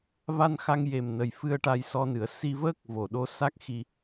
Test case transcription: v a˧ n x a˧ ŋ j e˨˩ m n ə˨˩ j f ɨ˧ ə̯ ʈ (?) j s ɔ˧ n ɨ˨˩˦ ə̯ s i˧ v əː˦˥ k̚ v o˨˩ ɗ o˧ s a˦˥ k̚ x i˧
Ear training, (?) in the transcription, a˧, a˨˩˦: a˧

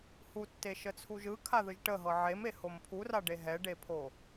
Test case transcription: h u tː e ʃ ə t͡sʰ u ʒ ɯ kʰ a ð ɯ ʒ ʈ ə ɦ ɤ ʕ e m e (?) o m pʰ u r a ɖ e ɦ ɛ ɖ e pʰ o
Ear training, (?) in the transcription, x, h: h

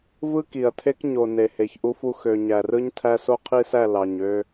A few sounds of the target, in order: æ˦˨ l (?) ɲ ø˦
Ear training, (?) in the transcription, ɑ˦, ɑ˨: ɑ˨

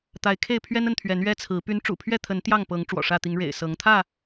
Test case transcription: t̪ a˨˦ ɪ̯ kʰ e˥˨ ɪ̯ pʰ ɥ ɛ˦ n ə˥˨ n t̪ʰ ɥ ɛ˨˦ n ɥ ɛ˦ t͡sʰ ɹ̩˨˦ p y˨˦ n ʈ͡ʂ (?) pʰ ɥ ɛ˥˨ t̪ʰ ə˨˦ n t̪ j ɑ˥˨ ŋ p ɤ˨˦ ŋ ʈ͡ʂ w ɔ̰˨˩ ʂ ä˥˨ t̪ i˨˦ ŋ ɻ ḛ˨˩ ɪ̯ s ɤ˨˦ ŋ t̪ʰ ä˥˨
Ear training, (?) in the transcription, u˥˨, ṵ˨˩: ṵ˨˩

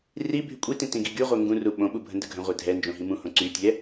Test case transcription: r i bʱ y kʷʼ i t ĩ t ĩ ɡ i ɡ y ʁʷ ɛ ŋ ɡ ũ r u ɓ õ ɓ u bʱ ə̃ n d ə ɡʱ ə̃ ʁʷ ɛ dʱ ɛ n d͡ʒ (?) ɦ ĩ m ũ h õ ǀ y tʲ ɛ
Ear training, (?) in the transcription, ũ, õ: õ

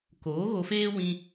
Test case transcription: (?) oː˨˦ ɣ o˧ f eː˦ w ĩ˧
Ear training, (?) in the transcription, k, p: k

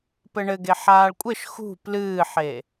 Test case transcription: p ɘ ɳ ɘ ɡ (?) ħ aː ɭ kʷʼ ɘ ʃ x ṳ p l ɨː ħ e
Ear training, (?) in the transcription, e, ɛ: e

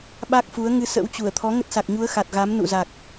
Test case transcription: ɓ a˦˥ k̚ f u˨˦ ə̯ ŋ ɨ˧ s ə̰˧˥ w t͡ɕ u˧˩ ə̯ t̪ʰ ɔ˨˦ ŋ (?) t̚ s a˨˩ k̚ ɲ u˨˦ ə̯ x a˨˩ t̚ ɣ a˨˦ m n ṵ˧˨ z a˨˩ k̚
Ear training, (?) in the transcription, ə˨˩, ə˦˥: ə˦˥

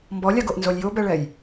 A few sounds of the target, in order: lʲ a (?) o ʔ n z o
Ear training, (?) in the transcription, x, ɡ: ɡ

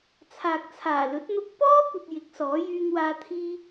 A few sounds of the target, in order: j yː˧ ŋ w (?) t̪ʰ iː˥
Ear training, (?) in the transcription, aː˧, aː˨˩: aː˧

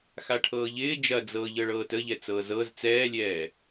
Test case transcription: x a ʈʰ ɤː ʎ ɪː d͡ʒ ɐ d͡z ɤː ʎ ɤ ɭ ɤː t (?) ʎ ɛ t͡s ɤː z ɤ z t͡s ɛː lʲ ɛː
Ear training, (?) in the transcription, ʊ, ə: ə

